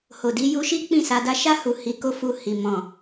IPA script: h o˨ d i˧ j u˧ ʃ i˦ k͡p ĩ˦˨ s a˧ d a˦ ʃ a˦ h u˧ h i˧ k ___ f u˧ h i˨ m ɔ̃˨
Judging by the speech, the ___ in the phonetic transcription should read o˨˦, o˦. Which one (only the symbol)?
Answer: o˦